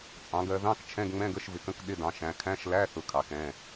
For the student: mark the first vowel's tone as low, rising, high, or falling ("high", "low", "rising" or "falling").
rising